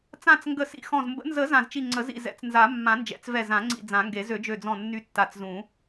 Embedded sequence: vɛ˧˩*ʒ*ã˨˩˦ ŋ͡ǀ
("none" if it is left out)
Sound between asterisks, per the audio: z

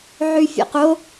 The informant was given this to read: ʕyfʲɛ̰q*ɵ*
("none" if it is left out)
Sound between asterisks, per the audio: o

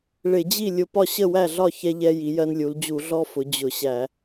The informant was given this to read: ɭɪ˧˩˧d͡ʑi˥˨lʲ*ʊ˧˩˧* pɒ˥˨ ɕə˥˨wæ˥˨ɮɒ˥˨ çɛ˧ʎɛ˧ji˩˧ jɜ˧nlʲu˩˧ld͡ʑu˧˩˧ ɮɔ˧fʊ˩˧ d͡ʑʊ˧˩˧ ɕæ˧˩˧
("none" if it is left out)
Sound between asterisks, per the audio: ʊ˧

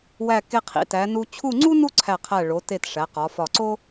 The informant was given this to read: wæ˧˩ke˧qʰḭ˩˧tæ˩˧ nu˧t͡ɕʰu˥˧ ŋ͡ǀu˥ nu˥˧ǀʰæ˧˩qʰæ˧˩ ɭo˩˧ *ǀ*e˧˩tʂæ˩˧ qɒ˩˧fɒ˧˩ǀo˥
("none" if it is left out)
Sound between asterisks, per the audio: t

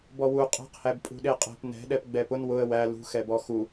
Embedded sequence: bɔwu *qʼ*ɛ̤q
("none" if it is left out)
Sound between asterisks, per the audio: qʼ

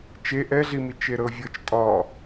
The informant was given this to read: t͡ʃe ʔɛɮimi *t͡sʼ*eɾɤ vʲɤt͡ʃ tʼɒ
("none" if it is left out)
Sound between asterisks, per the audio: t͡ʃ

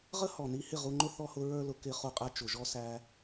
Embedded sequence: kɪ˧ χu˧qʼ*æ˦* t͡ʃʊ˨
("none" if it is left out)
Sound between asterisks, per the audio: æ˧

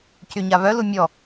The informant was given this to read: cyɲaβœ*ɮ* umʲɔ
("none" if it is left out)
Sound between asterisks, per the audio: l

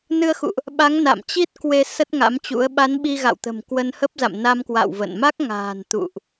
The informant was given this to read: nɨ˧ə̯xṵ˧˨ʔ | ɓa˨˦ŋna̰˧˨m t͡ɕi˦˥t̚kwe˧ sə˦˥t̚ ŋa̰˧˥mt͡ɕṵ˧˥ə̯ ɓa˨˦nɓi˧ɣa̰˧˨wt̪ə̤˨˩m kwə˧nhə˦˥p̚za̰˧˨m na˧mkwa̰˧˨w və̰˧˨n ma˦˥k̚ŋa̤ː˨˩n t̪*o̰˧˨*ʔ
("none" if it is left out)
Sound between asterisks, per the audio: ṵ˧˨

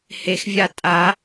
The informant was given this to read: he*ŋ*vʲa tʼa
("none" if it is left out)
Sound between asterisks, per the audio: x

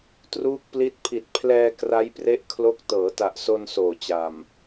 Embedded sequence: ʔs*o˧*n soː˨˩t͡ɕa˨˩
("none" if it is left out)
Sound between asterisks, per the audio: o˧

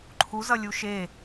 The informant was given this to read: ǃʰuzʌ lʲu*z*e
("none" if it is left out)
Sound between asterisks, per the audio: ʃ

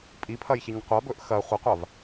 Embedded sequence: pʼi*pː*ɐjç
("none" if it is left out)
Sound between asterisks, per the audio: pʰ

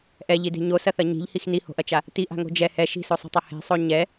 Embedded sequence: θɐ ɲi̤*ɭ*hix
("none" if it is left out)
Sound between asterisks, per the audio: ʎ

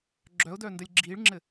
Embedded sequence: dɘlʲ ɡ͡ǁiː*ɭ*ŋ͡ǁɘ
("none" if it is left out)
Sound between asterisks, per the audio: ɭ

